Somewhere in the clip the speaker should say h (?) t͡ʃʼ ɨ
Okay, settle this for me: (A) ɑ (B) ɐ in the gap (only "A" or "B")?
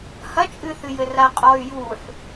B